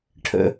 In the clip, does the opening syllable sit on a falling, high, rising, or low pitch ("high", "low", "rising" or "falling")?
low